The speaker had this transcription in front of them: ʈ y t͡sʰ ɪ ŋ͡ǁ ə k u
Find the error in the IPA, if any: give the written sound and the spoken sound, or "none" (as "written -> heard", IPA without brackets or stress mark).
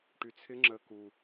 none